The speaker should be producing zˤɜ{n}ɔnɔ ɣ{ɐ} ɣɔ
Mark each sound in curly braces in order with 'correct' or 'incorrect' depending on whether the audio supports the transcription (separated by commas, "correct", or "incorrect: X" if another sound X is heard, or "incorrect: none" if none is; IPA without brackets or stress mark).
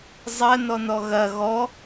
correct, correct